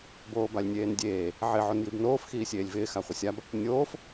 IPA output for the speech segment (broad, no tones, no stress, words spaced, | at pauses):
boːbalʲnʲeːndʲeː | ʕɪ ʕonjibnoːf xiːsʲeːlʲvɪː xaχʷɪsʲab | nʲoːf